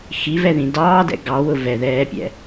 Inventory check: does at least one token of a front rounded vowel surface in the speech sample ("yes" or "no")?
no